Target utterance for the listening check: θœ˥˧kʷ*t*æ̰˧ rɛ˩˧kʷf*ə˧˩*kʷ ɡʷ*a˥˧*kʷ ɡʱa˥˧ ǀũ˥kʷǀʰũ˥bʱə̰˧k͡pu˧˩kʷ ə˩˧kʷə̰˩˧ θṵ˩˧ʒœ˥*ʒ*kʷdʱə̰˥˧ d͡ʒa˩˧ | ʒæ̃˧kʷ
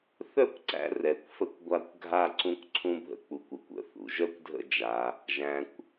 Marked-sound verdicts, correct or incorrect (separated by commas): incorrect, incorrect, correct, incorrect